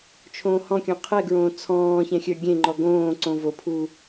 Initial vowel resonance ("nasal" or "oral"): nasal